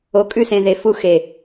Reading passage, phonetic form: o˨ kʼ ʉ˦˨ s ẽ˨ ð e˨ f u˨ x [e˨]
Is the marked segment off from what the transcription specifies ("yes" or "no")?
no